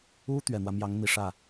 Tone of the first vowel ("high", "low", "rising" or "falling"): high